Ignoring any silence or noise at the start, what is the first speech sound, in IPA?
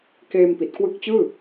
k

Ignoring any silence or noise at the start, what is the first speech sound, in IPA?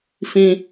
f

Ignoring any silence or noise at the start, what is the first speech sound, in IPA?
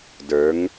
d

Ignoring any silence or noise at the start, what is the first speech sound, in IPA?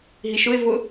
ɦ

